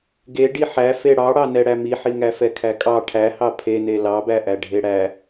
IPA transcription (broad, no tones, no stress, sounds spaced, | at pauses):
ɡ e ɖ i ħ æ f e ɽ ɑ ɽ ɑ n ɛ ɽ æ m i ħ i ŋ æ f ɛ kʰ æ kʼ ɑ ʈʰ æ h ɑ pʰ e n e l ɑ b æ ʔ æ ɖʱ e ɽ æ